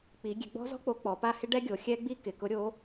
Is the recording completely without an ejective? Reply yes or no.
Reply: yes